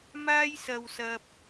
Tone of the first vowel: high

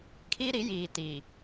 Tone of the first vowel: high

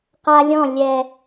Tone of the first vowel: high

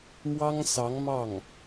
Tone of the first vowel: high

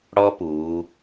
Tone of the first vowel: high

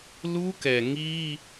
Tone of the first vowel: high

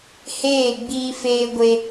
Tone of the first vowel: falling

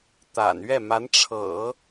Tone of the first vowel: low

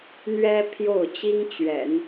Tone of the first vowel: high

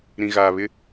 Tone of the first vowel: low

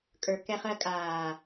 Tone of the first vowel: low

